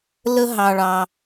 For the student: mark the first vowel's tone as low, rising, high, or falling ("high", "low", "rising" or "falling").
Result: high